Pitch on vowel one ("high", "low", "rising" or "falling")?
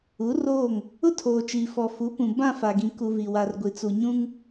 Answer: rising